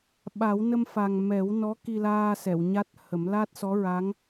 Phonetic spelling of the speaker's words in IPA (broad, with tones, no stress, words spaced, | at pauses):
ɓa˨˩˦wnə˧mfa˨˩ŋ mɛ˨˩˦w nɔ˧˥ki˧laː˧ sɛ˨˩˨wɲa˦˥t̚hə˨˩˦m la˦˥t̚sɔ˧˥ ɹa˧˥ŋ